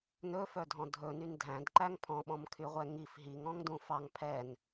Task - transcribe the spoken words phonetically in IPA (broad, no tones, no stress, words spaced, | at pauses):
nɵfœdʱɔ̃ dʱɵnyn dʱæ̃dǃæŋ pʰɔ̃ɓɔ̃mkʰyʁʷɛ ŋif ɦiŋɔ̃ŋdũ fɑŋ pʰɛn